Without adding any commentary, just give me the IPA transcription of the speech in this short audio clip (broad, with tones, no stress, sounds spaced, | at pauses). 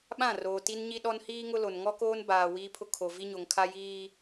ɓ ã˦˨ r oː˨ t i˦ n ɲ i˦ ɗ ɔ˦ n h iː˦ ŋ ʊ˦ l o˨ n ŋ ɔ˦ k oː˦ n b aː˨ w iː˦ pʰ ʊ˦ kʰ o˨ v i˦ ɲ o˨ ŋ kʰ a˦ j iː˦